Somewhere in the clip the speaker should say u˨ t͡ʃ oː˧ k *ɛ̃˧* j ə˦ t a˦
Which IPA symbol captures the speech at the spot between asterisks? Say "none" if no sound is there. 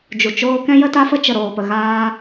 ɛ̃˦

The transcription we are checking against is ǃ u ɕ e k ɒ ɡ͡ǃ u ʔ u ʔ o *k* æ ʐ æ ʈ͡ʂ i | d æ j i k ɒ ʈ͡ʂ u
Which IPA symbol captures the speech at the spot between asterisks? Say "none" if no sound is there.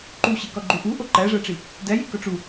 ǃ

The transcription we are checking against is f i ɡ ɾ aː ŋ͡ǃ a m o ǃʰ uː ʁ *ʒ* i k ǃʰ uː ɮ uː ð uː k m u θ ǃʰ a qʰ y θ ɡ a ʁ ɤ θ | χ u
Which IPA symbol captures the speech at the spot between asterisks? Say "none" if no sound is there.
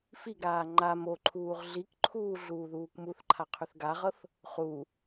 ɮ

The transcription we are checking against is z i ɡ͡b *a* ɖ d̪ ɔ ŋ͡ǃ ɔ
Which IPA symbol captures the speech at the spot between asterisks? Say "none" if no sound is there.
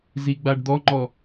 a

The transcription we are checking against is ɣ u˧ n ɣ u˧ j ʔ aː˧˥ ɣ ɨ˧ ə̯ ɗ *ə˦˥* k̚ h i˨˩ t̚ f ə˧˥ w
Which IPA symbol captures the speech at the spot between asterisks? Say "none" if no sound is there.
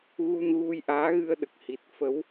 ə˨˩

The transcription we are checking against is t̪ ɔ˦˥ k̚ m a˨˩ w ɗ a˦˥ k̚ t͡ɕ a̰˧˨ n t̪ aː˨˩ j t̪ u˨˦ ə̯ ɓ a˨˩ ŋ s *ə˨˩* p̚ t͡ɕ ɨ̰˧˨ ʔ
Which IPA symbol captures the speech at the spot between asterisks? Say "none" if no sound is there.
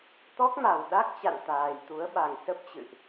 ə˦˥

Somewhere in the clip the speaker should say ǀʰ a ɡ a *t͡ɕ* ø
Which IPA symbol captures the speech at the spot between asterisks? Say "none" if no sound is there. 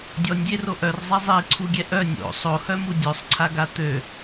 t̪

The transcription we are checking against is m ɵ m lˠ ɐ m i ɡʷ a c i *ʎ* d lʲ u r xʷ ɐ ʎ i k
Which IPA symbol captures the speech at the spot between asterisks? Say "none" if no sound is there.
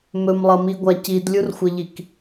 none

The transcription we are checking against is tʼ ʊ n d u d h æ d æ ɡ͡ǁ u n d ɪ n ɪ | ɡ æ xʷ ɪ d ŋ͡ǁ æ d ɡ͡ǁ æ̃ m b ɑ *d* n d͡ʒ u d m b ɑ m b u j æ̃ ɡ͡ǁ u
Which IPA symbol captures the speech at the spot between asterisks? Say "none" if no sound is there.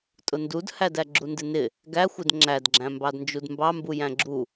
d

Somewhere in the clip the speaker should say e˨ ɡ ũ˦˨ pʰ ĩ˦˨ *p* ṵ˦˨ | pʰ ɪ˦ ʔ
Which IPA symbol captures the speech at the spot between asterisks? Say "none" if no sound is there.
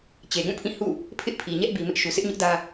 h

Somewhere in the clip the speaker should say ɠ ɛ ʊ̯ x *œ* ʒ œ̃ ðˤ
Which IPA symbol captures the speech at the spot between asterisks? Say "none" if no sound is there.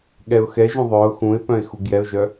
ɛ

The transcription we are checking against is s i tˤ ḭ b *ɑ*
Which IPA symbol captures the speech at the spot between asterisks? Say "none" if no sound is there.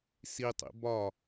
ɒ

